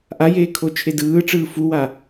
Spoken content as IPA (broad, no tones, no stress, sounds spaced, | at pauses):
ʔ a j eː kʰ o t͡ʃʰ e d ɯː ʈ͡ʂ ɯː f u w a